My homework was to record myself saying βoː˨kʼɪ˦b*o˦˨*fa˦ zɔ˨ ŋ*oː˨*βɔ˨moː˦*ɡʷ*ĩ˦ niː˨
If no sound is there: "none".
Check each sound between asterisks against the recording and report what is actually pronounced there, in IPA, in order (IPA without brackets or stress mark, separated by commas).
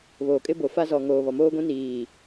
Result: o˨, oː˨, ɡʷ